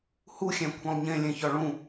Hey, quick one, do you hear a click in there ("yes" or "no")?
no